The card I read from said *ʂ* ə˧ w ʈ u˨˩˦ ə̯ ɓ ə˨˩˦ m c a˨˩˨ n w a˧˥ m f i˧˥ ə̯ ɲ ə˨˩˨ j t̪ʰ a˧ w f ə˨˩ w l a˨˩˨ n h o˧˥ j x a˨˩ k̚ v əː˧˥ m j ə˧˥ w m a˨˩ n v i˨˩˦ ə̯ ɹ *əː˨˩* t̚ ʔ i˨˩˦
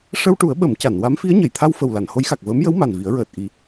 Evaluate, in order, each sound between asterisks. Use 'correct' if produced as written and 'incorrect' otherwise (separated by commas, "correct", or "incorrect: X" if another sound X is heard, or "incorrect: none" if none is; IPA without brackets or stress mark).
correct, correct